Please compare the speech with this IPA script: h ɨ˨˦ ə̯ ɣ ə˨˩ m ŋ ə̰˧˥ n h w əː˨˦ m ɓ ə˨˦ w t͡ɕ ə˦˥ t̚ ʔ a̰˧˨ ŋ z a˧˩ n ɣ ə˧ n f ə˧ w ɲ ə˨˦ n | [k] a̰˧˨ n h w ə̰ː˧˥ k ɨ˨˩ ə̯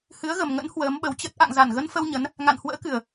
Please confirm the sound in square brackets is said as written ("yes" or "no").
no